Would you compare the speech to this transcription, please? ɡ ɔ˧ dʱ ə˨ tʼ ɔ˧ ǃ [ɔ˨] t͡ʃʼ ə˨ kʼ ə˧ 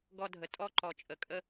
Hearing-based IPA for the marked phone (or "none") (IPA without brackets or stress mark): ɔ˨